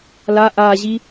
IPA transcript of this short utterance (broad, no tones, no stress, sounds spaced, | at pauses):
l a ʔ a ʑ i